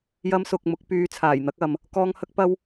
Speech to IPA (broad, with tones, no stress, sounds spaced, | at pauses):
j ɐ˥ m s ʊ˧ k̚ m ʊ˨˥ k̚ p yː˧ t͡sʰ aː˨˩ j n̪ ɐ˨˥ k̚ ɐ˨ m | k ɔː˧ ŋ h ɐ˥ k̚ p ɐ˥ w